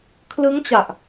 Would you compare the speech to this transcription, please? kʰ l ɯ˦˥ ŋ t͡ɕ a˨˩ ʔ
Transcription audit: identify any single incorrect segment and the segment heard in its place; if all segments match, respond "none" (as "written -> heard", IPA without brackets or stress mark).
none